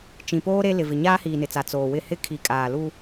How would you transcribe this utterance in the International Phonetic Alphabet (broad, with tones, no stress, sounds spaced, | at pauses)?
t͡ʃ ĩ˨ p oː˦ ɾ e˦ l ɪ˨ v ɪ˨ ɲ aː˦ h iː˨ n ɪ˨ t͡s a˨ t͡s oː˨ w ɪ˦˨ h ɪ˦ kʰ i˨ kʼ aː˨ l u˦